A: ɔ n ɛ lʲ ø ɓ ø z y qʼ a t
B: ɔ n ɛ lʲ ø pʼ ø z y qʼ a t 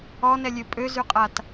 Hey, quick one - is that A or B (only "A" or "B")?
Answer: B